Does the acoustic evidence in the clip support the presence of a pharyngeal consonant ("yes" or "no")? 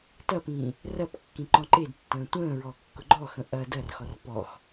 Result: no